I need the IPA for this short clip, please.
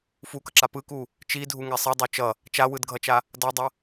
f u k ʌ ǁ a p ɯ k u | t͡ʃ i dʱ u ŋ ɛ sˤ e dˤ o t͡ʃ ʌ | t͡ʃ a w ɯ d ɡʱ ʌ t͡ʃ a | d ʌ dˤ ʌ

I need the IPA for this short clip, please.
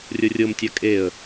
rʲ ɤ rʲ ɤ m tʲ a kʼ e ə̯

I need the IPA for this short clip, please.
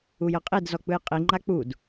u j ɤ qʼ i d z ɔ k͡p ɯ j qʼ i ŋ͡ǃ a k͡p u d

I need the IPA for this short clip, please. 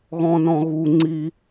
ɣ ɔ̃ n ɔ̃ ɣ u ŋ͡ǀ i

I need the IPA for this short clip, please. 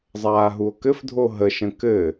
zˤ aː ɦ u o̯ k ɘ f dʱ o ɦ ə ʃ ə̃ k ɘ

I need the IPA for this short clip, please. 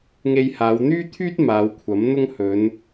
ŋ e˧ j h aː˨˧ w n̪ yː˥ t̪ʰ yː˥ t̚ m aː˨˧ w kʷʰ ɐ˨˥ m n̪ ʊ˥ ŋ h ɵ˨˧ n

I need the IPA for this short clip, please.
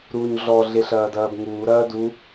ɾ uː ɲ ɮ ɔ ɮ e ɬ ɐː d ɐː b ŋ uː ɾ ɐː d u

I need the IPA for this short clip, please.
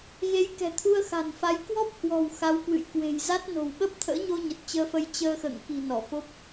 ɣ e˨˦ j k ɛ̤˨˩ t̪ʰ u˧ ə̯ x a̤˨˩ n f a˨˦ j k w ɔ˦˥ p̚ h w ɔ̤˨˩ w x a˨˦ w k w ɨ̰˧˨ j k w e̤˨˩ j z a˦˥ t̚ n o̤˨˩ w ɓ ə˦˥ p̚ t̪ʰ ə̰ː˧˥ ɲ o˧ ɲ ə˨˩ t̚ t͡ɕ əː˧ f ə˧ j t͡ɕ əː˧ x ə̰ː˧˨ ŋ k i̤˨˩ n ɔ˧˩ f o˦˥ p̚

